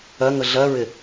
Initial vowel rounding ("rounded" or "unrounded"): unrounded